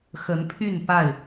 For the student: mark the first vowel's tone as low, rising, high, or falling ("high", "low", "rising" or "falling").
rising